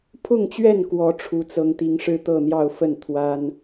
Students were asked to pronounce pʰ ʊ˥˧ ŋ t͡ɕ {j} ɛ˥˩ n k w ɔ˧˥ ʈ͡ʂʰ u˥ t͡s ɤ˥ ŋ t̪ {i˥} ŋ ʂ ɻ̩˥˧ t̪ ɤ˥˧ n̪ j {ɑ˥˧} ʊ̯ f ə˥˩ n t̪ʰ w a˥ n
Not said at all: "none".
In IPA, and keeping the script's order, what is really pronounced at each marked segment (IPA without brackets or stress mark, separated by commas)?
ɥ, i˥, ɑ˥˧